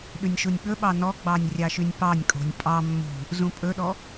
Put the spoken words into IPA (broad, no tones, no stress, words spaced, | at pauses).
ɗʉnʲʃunʲɓɵɓɑ nɔɡ͡bɑnʲ rʲɑʃynʲpɑnʲkʼo̤nʲ pʼɑ mːṳ | zũpʼɵɗɔ